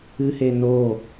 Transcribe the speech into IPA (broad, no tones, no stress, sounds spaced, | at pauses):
ɨ h e n o